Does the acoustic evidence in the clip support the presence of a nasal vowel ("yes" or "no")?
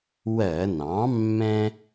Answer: yes